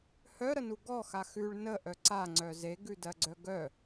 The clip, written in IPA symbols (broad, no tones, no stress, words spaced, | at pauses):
hœɾənu ɡɔxa xʉɭ nəʔœ ǀaŋ͡ǀœ zeɡʉdɜɡ͡ǀœ ɡœ